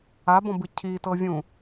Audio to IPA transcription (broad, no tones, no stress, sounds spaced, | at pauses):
a b ɔ̃ b ɯ cʰ i t ɤ vʲ ũ